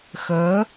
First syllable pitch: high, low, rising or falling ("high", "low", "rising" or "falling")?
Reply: rising